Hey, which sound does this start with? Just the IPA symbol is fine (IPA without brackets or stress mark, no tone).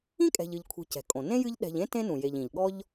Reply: ĩ